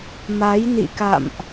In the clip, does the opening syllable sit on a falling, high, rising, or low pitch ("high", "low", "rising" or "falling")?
rising